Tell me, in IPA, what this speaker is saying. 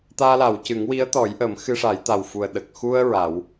t̪ aː˧ l a˨˩˨ w c ɨ˨˩˦ ŋ w i˧˥ ə̯ t̪ ɔ˨˩˦ j ʔ əː˨˩˦ m x ɨ˧ ʂ a˨˩˦ j t̪ a˨˩ w f u˨˩ ə̯ ɗ ə˨˩ k̚ x u˧ ə̯ ɹ a˨˩˦ w

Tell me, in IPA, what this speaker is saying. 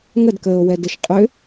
ŋ ə d k əː o̯ w ɛ d ə ʃ qʼ ʏ

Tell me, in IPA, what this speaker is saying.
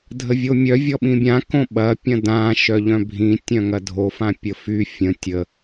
dʱ ə vʲ o mʲ œ vʲ ɔ ɓ ĩ bʲ ã k õ ɓ ɐ pʲ ɐ̃ d ã ʃ œ ʎ œ̃ bʱ ĩ tʲ œ̃ ŋ ɐ dʱ o f ã pʲ ə f y fʲ ə̃ tʲ ə

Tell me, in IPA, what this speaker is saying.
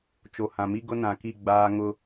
t͡ʃ o˨ h ã˨ m i˦ ɡ ʊ˦ n ã˨ k i˦˨ ɡ͡b aː˦ ŋ ʊ˦

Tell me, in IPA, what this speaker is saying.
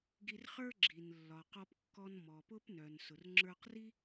ɡ i˧ r χ ə˞˥ ɡ͡ǁ i˩ n lː ɒ˩ q ɔ˧ p kː ɔ˧ n m ɔ˩ p ʊ˥ p n œ˩ n s ʊ˩ r ŋ͡ǁ ə˞˧ q r i˥

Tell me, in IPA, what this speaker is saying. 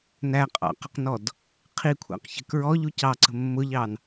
n æ qʼ ɑ̰ q ə q n ɔ d | qʰ i kʷʰ æ̰ q ç ə̤ k ɹ ɔ ʎ u c ɑ ǀ ə̤ mː ʊ ʎ ɑ n

